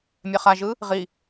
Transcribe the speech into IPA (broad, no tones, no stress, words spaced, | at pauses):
mʲɛχaʒɯ | ʁi